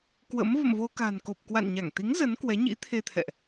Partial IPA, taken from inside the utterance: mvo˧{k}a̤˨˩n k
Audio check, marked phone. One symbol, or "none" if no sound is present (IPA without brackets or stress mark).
k